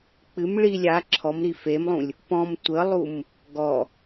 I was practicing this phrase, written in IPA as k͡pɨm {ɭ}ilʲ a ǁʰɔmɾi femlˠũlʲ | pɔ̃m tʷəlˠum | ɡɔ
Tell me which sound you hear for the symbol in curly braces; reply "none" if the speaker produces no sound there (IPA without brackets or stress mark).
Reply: ɭ